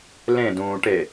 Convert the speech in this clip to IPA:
lẽdũːʈe

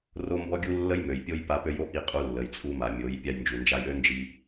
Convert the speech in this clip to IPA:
ro˦mbɔ˦ɡʲu˦ lːə˦jmø˨jpʲo˦j pa˧pø˧jo˦ ʔi˧qʼu˧ lːə˨jt͡sʼu˧ma˨mʲo˨˦j pʲa˧jnd͡ʒu˨nd͡ʒa˧j ø˦nd͡ʒi˧

